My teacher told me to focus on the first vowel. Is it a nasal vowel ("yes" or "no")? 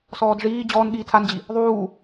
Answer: no